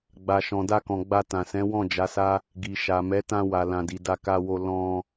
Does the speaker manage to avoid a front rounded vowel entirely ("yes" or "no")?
yes